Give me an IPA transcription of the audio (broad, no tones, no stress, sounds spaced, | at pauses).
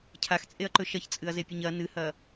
cʰ a x t͡sʼ e ɐ̯ ǃ ɵ ʃ ɐ ç t͡sʼ ɨ ɐ̯ z e pʲ ɐ ɲ ɐ n ɨ h ɐ